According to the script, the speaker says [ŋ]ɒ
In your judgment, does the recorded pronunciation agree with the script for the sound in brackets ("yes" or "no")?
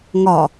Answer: yes